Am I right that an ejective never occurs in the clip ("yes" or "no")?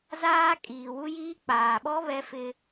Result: no